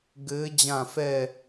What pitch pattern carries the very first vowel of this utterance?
rising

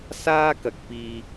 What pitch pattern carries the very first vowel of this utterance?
high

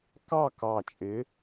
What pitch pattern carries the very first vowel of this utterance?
falling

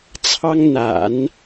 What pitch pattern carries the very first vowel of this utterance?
high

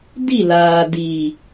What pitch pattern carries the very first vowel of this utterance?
falling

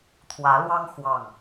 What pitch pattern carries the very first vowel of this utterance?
rising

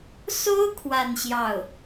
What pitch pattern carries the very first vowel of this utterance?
high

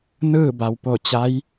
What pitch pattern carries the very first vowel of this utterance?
falling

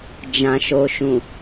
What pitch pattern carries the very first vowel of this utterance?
low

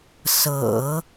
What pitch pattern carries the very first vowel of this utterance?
low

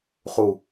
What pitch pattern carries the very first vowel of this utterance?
low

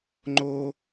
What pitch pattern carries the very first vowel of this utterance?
high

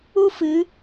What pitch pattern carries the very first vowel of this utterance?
high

